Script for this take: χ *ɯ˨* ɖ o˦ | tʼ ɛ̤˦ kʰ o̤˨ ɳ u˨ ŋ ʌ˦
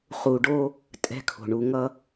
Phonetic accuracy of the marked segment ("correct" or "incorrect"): incorrect